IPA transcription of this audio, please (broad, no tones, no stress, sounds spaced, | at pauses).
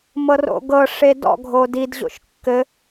m ɤ r o̰ ɡ ɤ ʂ e d ɔ̰ ɡʱ o d i d ʑ o̰ ʃ kː ɘ